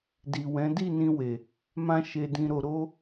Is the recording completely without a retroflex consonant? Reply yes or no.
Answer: yes